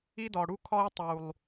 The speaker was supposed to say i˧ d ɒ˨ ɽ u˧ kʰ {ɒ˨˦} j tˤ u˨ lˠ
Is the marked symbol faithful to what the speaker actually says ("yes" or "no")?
no